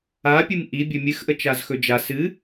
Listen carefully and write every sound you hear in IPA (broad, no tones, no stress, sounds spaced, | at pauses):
a pʲ ɨ m ʔ i bʲ ɵ mʲ ɨ x ʔ ə t͡ʃ a z x ɵ d͡ʒ a s ɨ